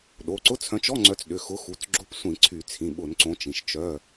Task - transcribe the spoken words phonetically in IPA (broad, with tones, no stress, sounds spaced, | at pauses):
ɗ o˩˧˩ ǀ ʊ˧˥˧ t͡sʰ œ̃˨˦ t͡ʃ ɔ˧˥˧ ŋ͡ǀ œ˨˦ t͡s ɗ ʏ˩˧˩ x ʊ˨˦ x u˩˧˩ t͡s ɡ͡ǁ ʊ˧˥˧ p sʷ ĩ˧˩˧ ǀʰ y˧˩˧ t͡sʰ ĩ˩˧˩ ɓ ʊ˧˩˧ n ǀ õ˨˦ t͡ʃ ĩ˩˧˩ ʃ t͡ʃ œ˧˥˧